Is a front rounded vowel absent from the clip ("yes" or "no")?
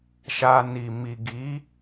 yes